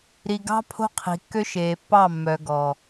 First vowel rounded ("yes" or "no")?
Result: no